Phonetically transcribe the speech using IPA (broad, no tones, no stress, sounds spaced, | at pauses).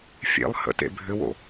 fʲ ḛ lˠ h ə̰ t ḛ bʱ ʏ w o̰